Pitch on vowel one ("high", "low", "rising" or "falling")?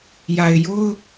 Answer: low